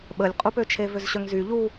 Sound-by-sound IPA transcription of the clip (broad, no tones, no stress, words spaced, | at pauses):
ɓəlʲqʼupøt͡ʃʰe vøzɕœŋzy ʎu